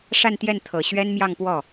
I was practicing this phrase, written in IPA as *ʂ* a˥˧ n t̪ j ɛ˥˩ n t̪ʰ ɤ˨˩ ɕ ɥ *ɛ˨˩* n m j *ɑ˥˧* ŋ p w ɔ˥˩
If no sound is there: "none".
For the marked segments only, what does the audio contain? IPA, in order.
ʂ, ɛ˥, ɑ˥˧

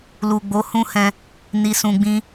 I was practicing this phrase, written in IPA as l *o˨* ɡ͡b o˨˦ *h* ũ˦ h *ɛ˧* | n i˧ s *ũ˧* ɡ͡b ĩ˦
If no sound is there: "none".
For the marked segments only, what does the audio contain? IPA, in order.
u˨, h, ɛ̃˧, ũ˧

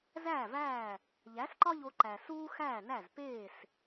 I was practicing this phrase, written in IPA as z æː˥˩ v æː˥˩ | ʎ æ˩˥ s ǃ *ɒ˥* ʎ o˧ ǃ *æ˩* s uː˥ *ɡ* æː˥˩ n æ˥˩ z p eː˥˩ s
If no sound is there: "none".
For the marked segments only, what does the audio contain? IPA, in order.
ɒ˥, æ˩, x

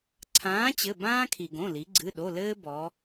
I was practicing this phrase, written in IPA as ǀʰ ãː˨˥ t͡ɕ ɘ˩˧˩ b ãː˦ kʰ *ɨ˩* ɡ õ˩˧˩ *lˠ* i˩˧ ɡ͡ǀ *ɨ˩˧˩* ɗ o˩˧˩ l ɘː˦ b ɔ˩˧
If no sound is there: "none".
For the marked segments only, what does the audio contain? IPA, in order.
i˩, l, ɨ˩˧˩

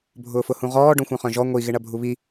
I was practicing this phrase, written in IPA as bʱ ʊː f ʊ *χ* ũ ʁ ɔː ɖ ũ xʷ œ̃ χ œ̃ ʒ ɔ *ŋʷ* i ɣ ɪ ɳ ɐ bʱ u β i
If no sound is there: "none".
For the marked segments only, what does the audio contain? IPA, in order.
h, ŋʷ

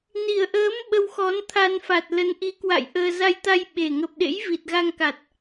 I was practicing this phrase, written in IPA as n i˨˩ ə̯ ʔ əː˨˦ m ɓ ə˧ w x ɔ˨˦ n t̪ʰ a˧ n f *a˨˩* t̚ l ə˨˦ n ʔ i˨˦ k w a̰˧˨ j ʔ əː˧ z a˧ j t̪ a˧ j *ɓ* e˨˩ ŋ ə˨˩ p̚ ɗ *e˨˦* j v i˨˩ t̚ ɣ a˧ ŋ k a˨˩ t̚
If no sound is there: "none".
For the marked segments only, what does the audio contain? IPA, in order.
a˨˩, ɓ, ḛ˧˥

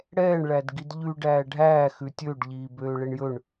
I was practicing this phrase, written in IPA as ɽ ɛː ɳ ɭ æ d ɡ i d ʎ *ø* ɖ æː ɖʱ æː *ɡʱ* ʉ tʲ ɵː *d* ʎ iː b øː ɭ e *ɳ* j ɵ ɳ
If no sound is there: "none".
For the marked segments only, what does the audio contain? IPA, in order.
ʉ, x, ɖ, ɳ

